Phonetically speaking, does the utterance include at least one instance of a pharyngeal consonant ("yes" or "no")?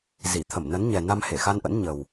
no